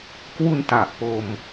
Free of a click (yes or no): yes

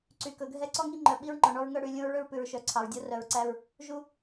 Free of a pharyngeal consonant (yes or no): yes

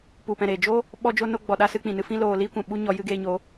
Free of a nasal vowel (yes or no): no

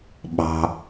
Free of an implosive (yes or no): no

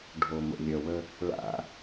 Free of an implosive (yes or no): yes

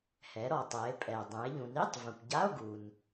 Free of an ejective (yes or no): no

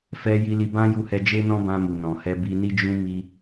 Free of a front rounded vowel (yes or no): yes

